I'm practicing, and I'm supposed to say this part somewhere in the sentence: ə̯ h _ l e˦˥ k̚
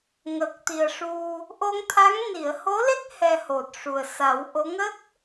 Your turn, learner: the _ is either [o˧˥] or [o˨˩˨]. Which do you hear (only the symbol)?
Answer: o˧˥